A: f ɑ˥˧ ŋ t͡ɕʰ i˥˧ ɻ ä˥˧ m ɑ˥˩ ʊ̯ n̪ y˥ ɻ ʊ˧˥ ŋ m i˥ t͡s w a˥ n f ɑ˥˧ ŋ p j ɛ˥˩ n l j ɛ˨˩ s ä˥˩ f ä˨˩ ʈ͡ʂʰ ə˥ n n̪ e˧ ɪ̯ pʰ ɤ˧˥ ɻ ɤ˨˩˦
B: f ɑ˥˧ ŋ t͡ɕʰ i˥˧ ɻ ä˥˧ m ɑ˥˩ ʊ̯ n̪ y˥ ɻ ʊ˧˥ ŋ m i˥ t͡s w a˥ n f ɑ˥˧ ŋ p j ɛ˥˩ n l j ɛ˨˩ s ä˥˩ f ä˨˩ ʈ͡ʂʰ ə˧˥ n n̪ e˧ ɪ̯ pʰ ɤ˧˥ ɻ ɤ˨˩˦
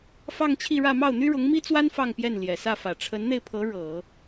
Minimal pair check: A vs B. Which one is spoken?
B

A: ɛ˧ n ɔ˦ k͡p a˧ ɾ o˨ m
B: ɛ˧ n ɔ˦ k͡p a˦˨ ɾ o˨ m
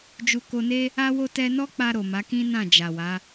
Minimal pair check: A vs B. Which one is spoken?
A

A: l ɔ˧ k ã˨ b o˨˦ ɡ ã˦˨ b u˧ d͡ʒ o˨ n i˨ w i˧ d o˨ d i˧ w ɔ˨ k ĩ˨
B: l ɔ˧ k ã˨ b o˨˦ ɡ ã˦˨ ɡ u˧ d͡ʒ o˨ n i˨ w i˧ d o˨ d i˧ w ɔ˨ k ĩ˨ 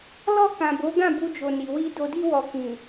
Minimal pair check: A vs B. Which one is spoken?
A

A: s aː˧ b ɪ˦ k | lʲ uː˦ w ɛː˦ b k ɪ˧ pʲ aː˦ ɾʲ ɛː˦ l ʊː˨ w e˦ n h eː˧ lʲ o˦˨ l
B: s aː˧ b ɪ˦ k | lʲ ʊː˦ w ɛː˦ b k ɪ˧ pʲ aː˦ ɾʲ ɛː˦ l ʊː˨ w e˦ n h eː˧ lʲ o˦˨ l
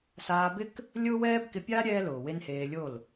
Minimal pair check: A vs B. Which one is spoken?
B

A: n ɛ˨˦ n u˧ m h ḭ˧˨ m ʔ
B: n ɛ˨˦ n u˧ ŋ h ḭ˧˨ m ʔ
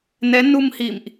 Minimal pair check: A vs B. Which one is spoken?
A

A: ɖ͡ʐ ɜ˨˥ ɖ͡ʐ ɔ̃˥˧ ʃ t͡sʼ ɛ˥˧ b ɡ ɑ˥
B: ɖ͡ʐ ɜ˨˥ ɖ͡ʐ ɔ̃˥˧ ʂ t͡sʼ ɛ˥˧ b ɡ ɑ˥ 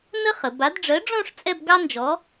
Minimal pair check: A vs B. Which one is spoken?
B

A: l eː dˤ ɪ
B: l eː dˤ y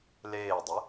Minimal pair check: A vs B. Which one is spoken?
A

